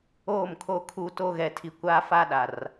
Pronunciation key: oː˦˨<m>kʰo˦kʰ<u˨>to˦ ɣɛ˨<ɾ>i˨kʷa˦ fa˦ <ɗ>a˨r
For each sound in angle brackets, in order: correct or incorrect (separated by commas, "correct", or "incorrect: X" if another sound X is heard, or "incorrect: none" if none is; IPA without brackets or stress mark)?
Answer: correct, incorrect: u˦, incorrect: tʰ, correct